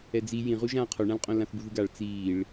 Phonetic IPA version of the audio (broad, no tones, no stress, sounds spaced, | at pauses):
ɛ d͡z i j ĩ ʁ u ʒ ãː qʰ o ɳ ã l qʼ õ l ã θ b u ð ɯ ɡ a ɭ t͡s iː ɭ